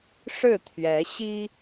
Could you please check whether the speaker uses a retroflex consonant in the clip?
yes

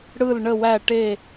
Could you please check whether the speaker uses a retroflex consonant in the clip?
yes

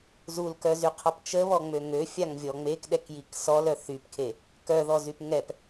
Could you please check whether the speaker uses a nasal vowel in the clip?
no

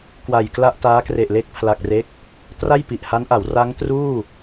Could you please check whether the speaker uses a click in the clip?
no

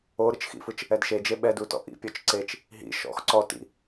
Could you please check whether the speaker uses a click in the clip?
yes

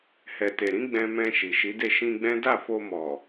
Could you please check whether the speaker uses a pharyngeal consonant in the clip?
no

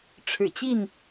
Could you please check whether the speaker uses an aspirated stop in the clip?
yes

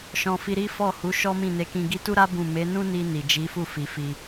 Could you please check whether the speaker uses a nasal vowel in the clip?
yes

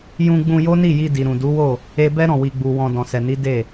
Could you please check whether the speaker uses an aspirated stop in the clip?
no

